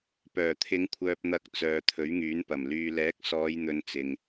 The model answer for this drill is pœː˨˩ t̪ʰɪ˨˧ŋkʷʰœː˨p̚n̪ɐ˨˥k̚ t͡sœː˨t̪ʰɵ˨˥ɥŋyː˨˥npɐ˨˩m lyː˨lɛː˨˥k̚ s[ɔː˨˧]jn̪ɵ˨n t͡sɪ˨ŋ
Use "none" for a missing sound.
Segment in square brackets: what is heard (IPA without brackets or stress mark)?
ɔː˨˧